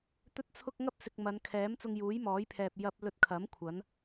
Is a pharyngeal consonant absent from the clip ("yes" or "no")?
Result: yes